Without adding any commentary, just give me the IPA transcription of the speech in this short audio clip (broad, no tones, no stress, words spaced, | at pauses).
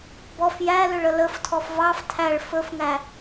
bɔf jælʏɭ ələftʰɔf vɑf tʰæɭ fɵfŋæ